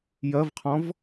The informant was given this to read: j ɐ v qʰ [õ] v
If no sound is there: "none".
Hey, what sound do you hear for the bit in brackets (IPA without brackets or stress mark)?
ɔ̃